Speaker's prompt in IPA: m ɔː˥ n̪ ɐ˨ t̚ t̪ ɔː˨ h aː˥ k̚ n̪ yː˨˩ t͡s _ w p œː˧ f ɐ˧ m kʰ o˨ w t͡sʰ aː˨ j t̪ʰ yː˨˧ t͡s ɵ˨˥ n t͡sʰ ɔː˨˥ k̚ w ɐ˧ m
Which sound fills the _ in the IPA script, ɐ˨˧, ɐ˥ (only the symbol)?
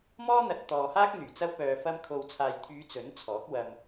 ɐ˥